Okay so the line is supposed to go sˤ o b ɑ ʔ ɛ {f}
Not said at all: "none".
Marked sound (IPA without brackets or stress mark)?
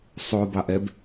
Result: b